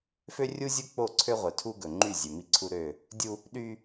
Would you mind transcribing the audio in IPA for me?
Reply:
f ø˦ rʲ u˦ zʲ u˦ k͡p o˦˨ ǀʰ ø˦ ʁʷ œ˨ tʰ u˦ ɡ ɵ˨ ŋ͡ǃ y˦˨ zʲ ø˨ m i˦ ǀʰ u˦ ɾ ø˦˨ | dʲ u˦ | ɗ y˦

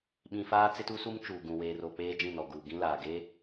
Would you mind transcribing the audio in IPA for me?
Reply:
ɓ ĩ˨ f aː˦ t͡s ɪ˦ t u˦ s u˦ m t͡ʃ uː˨ ɡ ũ˨ w eː˨ r o˨ k͡p eː˦ d͡ʒ ĩ˦˨ n ɔ˨ ɡ uː˨ ɡ ĩ˦ l aː˨ ɡ e˦

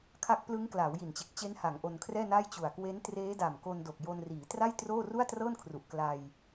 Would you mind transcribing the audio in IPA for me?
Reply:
kʰ a˦˥ k̚ p l ɯ˦˥ ŋ k l aː˩˦ w j i˨˩ n t͡ɕ e˨˩ k̚ t͡ɕ e˦˥ n h a˩˦ ŋ ʔ o˧ n kʰ r ɛː˥˩ n a˥˩ j t͡ɕ u˨˩ a̯ k w e˦˥ n t r eː˦˥ d a˨˩ m k o˧ n d o˨˩ k̚ j o˧ n r iː˩˦ t r a˥˩ j t r oː˥˩ r u˥˩ a̯ t r ɤː˥˩ n kʰ r u˨˩ ʔ k l a˧ j

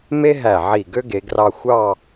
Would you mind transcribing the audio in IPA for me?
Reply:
m e˥ ɦ æ˧˩ ʕ i˧˩ ɡ ø˥ ɡ e˩˧ ɡ r ɑ˧ xʷ ɑ˥˧

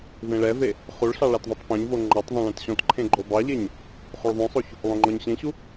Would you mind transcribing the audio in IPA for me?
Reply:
v ẽ ɭ ɛ v e | χ u ɭ ɬ ɑ ɭ a t ðˤ u tˤ p õ ɲ v o ŋ͡ǃ ɔ tˤ ðˤ õ ɭ ẽ t ɕ ɔ̃ t ǃʰ ẽ ɡ͡ǃ o b ɑ ʎ e ɲ | χ u ɭ ðˤ õ sˤ o ç | lˠ õ ŋ͡ǃ ɔ ɲ ɕ ẽ ɕ u

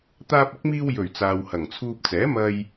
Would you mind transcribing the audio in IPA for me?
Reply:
t̪ aː˧ p̚ ɪ˨˥ k̚ m iː˧ w j ɵ˨˩ ɥ t͡s aː˨ w h ɐ˨˩ ŋ t͡sʰ uː˧ p̚ t͡s ɛː˨˥ m ɐ˧ j

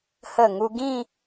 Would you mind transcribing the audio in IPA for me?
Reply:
h ə˧˩ ŋ u˧ ɡ ĩ˥˧

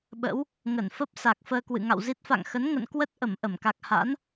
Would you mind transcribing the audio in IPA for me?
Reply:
ɓ ə̰˧˥ w | ŋ ə˧˩ n f ə˦˥ p̚ s a˨˩ k̚ f əː˧ k w ɨ̰˧˨ ŋ a̰˧˨ w z i˦˥ t̚ f a̰˧˨ ŋ x ə˨˦ n ŋ ə̰˧˨ n k w ə˦˥ t̚ ʔ ə˧˩ m ʔ ə˧˩ m k a˨˩ k̚ h a̰˧˥ n

